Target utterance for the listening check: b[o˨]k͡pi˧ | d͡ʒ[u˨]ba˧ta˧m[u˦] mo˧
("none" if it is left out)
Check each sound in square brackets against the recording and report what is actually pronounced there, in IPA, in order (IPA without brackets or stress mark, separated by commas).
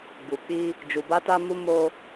u˨, u˨, u˧